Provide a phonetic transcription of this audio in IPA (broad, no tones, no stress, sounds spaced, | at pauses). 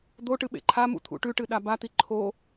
d̪ o ʈ ɨ ɓ ḛ ǃʰ a m ṵ t̪ʰ ṵ ʈ ʉ ʈ ɨ ɗ a b a t̪ i ǃʰ o